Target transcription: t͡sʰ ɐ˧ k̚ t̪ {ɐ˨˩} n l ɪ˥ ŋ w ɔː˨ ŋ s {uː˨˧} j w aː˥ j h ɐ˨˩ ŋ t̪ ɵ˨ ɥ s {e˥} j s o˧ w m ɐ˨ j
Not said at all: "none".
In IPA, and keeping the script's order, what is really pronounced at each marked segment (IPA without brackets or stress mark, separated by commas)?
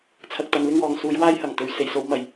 ɐ˨˥, uː˨˧, e˨˩